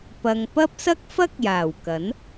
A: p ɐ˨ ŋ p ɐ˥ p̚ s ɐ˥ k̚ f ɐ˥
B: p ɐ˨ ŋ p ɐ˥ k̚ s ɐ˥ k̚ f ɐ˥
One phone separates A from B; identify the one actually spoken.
A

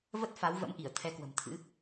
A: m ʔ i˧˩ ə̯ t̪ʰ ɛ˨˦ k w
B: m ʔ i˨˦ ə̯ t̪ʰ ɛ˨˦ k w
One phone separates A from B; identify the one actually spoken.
A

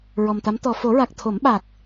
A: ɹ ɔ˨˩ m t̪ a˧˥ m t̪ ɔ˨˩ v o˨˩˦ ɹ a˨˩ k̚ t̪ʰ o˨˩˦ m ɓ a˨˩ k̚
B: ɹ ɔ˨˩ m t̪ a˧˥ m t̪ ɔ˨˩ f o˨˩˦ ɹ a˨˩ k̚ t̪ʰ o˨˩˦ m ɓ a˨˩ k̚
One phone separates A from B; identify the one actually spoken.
B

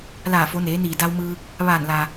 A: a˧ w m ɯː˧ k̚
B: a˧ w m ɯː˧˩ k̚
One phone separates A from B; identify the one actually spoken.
A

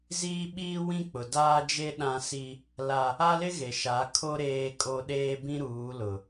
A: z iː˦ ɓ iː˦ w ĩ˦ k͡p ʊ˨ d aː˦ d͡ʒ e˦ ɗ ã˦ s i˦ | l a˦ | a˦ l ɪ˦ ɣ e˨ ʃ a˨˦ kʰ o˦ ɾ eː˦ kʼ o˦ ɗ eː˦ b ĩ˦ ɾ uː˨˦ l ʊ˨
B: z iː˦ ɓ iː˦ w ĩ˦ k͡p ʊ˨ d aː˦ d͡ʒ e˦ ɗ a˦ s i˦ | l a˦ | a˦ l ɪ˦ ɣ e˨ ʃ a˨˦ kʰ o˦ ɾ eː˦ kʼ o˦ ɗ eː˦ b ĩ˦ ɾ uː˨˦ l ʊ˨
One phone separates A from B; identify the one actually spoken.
A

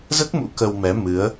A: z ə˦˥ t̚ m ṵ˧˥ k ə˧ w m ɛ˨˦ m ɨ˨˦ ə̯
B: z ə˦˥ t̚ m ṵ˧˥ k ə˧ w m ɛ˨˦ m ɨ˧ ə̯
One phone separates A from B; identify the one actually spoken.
A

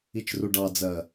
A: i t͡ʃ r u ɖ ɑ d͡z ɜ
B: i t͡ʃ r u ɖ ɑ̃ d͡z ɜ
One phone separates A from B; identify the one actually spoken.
A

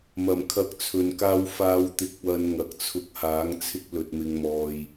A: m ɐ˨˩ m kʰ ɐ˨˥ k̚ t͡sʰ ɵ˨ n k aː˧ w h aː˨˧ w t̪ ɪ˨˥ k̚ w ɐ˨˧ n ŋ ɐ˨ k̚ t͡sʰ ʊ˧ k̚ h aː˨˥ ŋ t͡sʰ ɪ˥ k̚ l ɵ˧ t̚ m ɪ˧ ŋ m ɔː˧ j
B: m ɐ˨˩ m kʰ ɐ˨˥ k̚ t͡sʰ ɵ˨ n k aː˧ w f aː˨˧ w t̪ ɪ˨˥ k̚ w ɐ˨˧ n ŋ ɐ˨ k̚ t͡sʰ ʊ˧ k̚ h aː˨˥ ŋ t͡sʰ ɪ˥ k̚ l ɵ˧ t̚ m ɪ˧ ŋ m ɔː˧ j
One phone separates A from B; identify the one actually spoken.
B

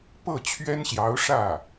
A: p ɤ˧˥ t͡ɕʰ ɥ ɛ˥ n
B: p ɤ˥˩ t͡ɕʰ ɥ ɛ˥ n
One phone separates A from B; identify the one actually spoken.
B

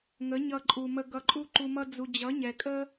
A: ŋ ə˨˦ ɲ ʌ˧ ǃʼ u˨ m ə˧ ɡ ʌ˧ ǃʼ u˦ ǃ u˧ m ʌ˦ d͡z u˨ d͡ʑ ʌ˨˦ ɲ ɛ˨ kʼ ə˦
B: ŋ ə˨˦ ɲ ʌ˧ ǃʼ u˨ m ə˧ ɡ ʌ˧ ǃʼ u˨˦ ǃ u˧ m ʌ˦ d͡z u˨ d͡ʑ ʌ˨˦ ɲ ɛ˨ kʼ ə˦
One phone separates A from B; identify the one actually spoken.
A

